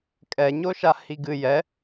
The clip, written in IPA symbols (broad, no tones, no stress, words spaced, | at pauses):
kʼɛ ɲoʃahiɡɨ jɛ